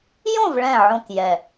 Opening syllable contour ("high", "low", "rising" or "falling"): falling